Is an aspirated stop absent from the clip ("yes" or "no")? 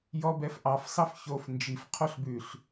no